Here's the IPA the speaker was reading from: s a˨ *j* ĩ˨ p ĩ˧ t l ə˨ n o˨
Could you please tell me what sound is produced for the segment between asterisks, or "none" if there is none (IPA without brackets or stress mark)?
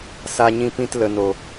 ɲ